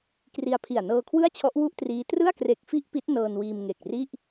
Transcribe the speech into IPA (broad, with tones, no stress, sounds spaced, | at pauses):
k r i˧ a̯ pʰ i˨˩ a̯ n ɤː˧ kʰ w ɯ˥˩ a̯ t͡ɕʰ ɔ˦˥ ʔ w u˥˩ ʔ t r iː˦˥ t r ɯ˥˩ a̯ k r e˨˩ k̚ f i˥˩ ʔ p i˦˥ t̚ n ɤː˧ n w iː˧ m ŋ e˨˩ k̚ r i˥˩ ʔ